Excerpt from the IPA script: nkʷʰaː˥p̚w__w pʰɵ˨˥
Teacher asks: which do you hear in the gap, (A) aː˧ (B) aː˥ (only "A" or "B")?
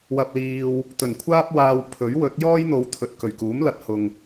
A